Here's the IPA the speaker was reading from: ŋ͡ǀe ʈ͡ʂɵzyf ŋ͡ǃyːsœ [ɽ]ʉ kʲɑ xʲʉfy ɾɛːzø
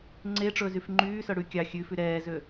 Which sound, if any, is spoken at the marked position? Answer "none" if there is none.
ɽ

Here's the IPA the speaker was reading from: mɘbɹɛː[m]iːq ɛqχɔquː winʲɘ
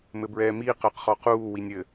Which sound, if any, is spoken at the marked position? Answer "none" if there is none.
m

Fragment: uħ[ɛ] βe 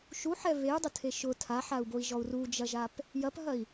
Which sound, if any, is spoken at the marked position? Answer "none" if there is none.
ɛ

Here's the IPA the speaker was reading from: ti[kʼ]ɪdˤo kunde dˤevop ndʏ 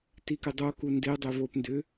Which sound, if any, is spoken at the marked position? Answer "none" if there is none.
k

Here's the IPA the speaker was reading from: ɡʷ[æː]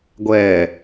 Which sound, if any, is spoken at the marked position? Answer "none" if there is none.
ɛː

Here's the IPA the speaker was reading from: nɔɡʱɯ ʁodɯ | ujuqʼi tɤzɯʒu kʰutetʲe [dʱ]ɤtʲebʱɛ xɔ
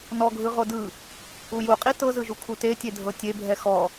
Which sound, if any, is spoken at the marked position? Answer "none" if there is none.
dʱ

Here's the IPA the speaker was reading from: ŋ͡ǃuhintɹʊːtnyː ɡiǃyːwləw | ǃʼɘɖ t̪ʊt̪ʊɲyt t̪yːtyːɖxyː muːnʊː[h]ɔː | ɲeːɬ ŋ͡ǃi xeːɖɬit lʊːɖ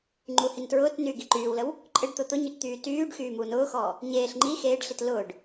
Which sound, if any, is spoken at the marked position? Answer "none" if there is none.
x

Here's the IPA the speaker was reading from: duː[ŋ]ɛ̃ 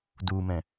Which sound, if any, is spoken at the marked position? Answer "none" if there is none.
m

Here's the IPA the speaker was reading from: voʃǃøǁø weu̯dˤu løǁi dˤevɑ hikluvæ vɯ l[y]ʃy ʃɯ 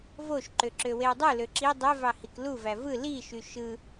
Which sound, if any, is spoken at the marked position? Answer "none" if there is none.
i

